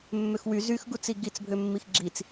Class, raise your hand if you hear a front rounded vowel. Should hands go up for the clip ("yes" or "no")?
yes